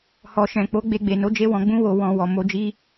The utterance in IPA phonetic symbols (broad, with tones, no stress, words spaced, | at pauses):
hɔ˨ʃɛ̃˨k͡po˨˦ ɡ͡be˧ɡ͡be˨no˨˦ d͡ʒe˦wɔ̃˧ɡ͡bũ˦ wo˧ wɔ̃˧ wɔ˨ mo˧d͡ʒi˦